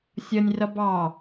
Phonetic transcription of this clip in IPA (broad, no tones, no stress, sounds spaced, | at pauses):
sʲ ʌ nʲ r ʌ b ɑ